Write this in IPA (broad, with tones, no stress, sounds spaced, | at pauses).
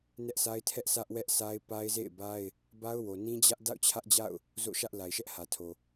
n ɛ˦ ʔ s a˦ ɪ̯ tʰ ɛ˦ ʔ s ä˦ ʔ w ɛ˦ ʔ sʰ a˦ ɪ̯ p a˦ ɪ̯ z ḛ˦˨ ɪ̯ b a˦ ɪ̯ | b a˦ ʊ̯ w o˨ n ĩ˦ d͡ʑ ä˦ ʔ d a̰˦˨ ʊ̯ t͡ɕʰ ä˦ ʔ d͡ʑ a̰˦˨ ʊ̯ | z o̰˦˨ ʃ ä˦ ʔ l a˨ ɪ̯ ʃ ɛ˦ ʔ h ä˨ tʰ o˨